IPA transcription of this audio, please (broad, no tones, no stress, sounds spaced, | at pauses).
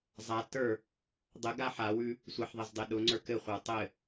zˤ a t ə˞ | dˤ ə ɡ a ħ a w ʉ | sʷ ə ħ ðˤ ɘ z dˤ e ɗ ʊ ŋ͡ǀ ə˞ k ɘ χʷ ə˞ tˤ ɘ